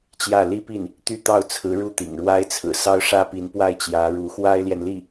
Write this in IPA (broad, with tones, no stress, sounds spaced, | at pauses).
t͡ɕ j ä˥˩ l i˥ p i˥˩ n | t̪ y˥˧ t̪ ɑ˥˩ ʊ̯ t͡sʰ ɹ̩˧˥ ɻ u˥ t̪ ḭ˨˩ ŋ ɻ w a˥ ɪ̯ t͡sʰ ɹ̩˨˩ s ɑ˥ ʊ̯ ʂ ä˥ p i˧˥ n p w a˥˩ ɪ̯ t͡ɕ j ä˧˥ ɻ u˧˥ x w a˥ ɪ̯ l j ɛ˨ n l i˥˩